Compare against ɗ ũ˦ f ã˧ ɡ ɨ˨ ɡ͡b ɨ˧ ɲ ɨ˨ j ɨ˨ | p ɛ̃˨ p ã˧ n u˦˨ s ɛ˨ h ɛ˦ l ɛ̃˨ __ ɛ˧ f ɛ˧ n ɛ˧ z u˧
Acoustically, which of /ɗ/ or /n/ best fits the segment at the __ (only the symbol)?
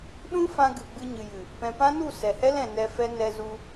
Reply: n